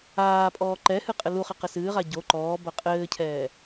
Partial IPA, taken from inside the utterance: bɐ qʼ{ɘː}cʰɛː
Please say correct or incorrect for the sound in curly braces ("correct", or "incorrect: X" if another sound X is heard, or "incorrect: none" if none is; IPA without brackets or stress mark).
correct